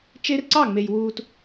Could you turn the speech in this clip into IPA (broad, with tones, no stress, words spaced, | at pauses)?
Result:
t͡ʃe˦rǀɑ˦˨ŋ͡me˨j wuː˨t